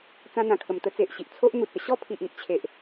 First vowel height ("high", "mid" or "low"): low